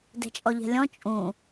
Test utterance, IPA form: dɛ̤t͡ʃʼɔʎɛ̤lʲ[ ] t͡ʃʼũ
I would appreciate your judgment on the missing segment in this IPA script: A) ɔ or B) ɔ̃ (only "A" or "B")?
B